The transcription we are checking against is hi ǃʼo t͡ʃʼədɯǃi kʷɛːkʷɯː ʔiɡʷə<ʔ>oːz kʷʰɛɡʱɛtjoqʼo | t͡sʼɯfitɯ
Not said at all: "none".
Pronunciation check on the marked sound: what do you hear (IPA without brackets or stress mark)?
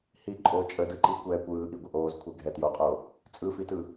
ʔ